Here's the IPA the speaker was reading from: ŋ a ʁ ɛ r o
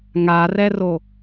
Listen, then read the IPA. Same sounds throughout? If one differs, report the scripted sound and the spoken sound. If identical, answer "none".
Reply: ʁ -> r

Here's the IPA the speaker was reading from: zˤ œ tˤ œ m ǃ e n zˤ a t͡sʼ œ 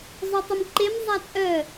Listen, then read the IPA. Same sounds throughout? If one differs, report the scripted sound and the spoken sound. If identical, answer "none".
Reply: n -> m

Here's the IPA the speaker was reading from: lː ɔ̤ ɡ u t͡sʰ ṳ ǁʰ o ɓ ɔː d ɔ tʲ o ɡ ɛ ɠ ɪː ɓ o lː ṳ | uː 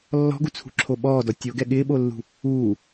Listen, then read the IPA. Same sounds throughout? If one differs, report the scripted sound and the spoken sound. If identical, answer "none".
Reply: none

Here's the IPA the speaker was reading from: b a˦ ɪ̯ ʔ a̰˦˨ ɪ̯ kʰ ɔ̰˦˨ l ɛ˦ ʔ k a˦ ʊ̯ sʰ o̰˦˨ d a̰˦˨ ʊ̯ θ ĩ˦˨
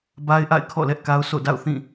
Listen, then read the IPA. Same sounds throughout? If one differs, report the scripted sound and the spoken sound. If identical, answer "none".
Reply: none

